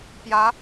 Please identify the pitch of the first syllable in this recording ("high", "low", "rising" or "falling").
rising